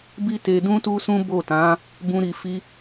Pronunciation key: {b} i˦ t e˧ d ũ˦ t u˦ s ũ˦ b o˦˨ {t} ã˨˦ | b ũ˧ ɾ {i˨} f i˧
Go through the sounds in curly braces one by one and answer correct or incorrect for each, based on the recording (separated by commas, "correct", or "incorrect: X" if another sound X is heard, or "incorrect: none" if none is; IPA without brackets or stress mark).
correct, correct, correct